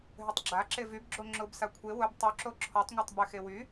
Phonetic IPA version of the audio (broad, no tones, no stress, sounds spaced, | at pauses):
ɦ ʏ tˤ ɡ͡ǁ a ǁ e v y b ɡ͡ǁ o ŋ͡ǁ ʊ b s a kʷʰ e w ʊ b tˤ y ǁ o ǁʰ ɔ tˤ ŋʷ a tˤ b ʏ x e w y